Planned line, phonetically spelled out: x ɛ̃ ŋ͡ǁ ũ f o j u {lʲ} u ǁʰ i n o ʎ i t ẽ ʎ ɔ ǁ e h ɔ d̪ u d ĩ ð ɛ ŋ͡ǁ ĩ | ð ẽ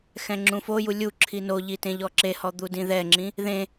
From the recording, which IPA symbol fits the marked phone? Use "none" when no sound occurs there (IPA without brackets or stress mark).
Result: lʲ